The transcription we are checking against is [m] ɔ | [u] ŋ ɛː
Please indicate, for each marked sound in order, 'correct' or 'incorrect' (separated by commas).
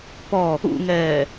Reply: incorrect, incorrect